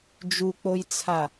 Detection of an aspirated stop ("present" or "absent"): present